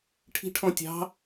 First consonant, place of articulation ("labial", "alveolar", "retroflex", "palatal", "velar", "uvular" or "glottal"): retroflex